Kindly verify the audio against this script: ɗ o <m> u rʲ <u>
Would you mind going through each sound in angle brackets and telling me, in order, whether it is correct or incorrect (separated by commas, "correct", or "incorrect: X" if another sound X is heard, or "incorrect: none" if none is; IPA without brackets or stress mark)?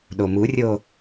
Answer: correct, incorrect: o